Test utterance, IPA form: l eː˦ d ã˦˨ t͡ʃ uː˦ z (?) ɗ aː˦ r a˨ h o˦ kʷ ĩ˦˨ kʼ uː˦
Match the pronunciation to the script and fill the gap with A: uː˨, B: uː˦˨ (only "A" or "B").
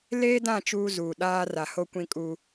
A